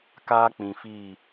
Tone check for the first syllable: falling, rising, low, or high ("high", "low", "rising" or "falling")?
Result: high